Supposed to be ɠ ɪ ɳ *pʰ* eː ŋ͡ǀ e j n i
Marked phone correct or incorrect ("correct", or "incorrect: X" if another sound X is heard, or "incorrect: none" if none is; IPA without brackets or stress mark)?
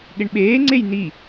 incorrect: ɓ